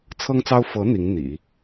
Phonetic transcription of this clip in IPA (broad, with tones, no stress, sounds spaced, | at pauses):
t͡sʰ ɤ˥ ŋ t͡s ɑ˥ ʊ̯ f ɤ˧˥ n̪ i˧˥ ŋ n̪ ḭ˨˩˦